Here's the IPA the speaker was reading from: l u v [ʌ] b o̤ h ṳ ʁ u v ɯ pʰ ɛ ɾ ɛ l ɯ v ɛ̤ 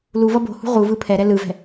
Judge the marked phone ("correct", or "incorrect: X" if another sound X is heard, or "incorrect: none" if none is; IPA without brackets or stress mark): correct